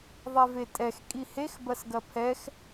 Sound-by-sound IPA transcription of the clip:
ðˤ ɛ v e tʼ ɛ x kʼ i h e x b ɐ s ɡ ɐ pʰ ɛ x

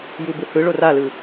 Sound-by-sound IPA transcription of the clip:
j u b ɯ h ɯ ɭ o r a l ɯ

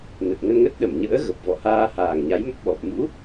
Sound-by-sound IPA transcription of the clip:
n ə˨˩ t̚ ŋ ə˧ n ŋ ə˦˥ t̚ ɗ ə˧˩ m ɲ ə̰ː˧˥ ɣ ə˨˩ p̚ v ɔ̰˧˨ h aː˧ h aː˨˩ ŋ ɲ a˨˦ j m ə˦˥ p̚ ɓ ɔ˨˩ p̚ m ṵ˧˥

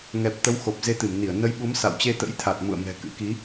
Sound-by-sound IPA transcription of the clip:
ŋ ɛ˨˩ p̚ t̪ ə˨˦ w x o˨˩ p̚ z e˧ t̪ ɨ˧˩ m n i˧˩ ə̯ n ə˨˦ j ɓ u˨˦ m s a̰˧˨ w t͡ɕ e˧ t̪ ə̰˧˥ j t̪ʰ a˨˩ t̚ m ṵ˧˨ ə̯ m ɛ̤˨˩ k ɨ̰˧˥ k i˨˦

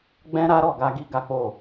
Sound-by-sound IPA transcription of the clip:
ɡ͡b ɛ̃˦ ɾ a˦ ɾ ɔ˦˨ ɡ a˧ ɡ i˦ ɡ a˦ k͡p o˦˨

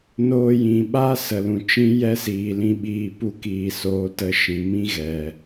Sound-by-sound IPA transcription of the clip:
n oː˧ j ĩ˨ ɓ a˦ s ə˨ l ũ˨ t͡ʃ ĩ˦ j ɛ˦ s iː˨ l ĩ˧ ɓ iː˧ p u˦ k iː˨ s oː˧ t ə˧ ʃ ĩ˨ m ĩ˦ ɣ ɛ˨

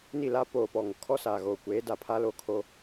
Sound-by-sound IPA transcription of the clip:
n i˦˨ l a˦ p oː˨ p ɔ˨ ŋ o˨ kʰ ɔ˦ s aː˨ ɣ oː˨ kʷ eː˨˦ d a˨ pʰ a˦ l o˦ kʰ o˦

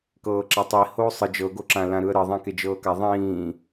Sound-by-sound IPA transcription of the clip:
k ɤː ǁ a tˤ i h oː sˤ ɯ d͡ʒ ɤ ɡ o ǁ ã l ã ɾ ɯ ə̯ ɾ ɤ ðˤ ẽ k e d͡ʒ ɤː k a ðˤ ĩː

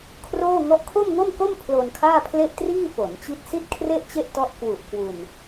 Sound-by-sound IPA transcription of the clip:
kʰ r oː˥˩ ŋ ɔ˦˥ ʔ kʰ o˥˩ m ŋ o˥˩ m k o˥˩ m pʰ l o˧ n kʰ aː˥˩ pʰ l e˥˩ ʔ t r iː˥˩ f o˩˦ n t͡ɕ i˦˥ t̚ s i˥˩ t̚ kʰ r e˥˩ ʔ t͡ɕ e˥˩ ʔ t ɔ˦˥ ʔ k w u˨˩ ʔ k w u˧ n

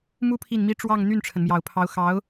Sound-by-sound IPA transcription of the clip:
m u˥ pʰ i˥˩ n m i˥ ʈ͡ʂ w ɑ˥˧ ŋ n̪ y˥˩ n ʈ͡ʂʰ ə˩ n m j ɑ˨˩ ʊ̯ pʰ ɑ˧˥ ʊ̯ x ɑ˧˥ ʊ̯

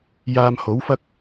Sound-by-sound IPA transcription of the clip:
j aː˧ m h o˨˥ w f ɐ˥ k̚

